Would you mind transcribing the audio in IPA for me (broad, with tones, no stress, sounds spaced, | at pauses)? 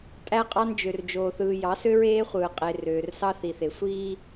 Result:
tʼ æ˦ qʼ ɑ˦ n d͡ʒ ø˨ r d͡ʒ oː˨ θ ɯː˨ j ɑ˨˦ s ø˦ ɹ eː˦ χʷ ɯː˨ qʼ e˨ r øː˨ r s ɑ˦ θ i˨ θ e˨ sʷ iː˦